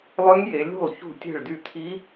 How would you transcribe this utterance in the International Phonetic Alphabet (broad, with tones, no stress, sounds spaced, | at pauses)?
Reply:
lˠ ø˦˥ ŋ j e˨˦ lʲ ṳ˥˩ lˠ ç ṳ˥˩ tʲ e̤˥˩ ɭ d y˥˩ t̪ʰ i˦˥